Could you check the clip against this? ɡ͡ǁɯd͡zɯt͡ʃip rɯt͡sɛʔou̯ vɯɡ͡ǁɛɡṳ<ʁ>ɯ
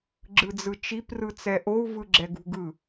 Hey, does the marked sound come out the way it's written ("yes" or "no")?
no